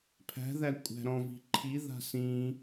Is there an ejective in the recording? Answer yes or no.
yes